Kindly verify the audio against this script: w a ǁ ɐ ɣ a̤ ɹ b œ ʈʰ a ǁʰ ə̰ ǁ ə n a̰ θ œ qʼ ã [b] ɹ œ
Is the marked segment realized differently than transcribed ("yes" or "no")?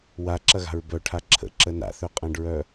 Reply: yes